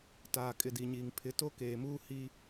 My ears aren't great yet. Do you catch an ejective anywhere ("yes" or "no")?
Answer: yes